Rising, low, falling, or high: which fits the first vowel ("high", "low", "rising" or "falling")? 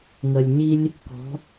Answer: low